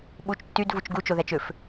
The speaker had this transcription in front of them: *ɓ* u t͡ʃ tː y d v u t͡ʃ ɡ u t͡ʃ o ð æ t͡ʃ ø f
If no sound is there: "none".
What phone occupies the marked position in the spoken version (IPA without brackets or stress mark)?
ɓ